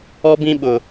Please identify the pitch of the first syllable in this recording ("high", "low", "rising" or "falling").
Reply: high